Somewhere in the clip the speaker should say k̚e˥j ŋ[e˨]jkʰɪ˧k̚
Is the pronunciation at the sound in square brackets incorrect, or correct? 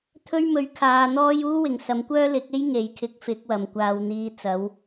correct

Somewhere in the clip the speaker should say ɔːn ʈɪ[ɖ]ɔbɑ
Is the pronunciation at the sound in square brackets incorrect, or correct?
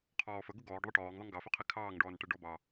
correct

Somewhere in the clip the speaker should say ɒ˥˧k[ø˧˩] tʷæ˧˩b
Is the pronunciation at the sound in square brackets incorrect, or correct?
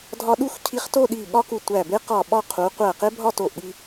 incorrect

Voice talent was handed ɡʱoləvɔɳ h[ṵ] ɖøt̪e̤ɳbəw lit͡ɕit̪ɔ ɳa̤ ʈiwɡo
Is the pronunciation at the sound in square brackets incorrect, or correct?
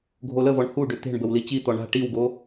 incorrect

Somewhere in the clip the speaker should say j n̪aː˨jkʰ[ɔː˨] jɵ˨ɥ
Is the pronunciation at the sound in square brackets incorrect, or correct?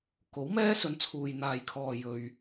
correct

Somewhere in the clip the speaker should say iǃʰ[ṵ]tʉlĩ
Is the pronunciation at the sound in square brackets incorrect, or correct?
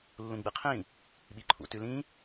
correct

